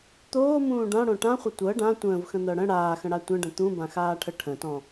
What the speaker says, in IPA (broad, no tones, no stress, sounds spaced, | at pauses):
t̪ oː m ũː ɖ ã ɽ õ ʈ ã χʷ ə tʷ ɤ ɖ ã tʷ ə̃ː v x ə̃ n̪ ɤ ɽ ə̃ ɽ aː x ə̃ ɽ a tʷ ə̃ ɖ ə̃ t̪ ũ b ã x aː ʈʰ ə ʈʰ ə̃ t ɔ̃